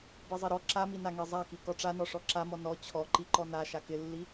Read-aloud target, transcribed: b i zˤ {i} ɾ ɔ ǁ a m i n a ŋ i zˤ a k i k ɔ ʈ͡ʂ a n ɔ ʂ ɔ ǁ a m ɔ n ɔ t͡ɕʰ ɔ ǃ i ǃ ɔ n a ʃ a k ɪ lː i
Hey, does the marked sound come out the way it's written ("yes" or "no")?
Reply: yes